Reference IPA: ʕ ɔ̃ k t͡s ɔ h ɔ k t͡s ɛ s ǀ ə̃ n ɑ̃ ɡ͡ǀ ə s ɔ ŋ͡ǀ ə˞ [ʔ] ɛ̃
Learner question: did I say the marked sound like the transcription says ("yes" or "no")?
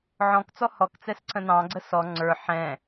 no